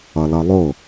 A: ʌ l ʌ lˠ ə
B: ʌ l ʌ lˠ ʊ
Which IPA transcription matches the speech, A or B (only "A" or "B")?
B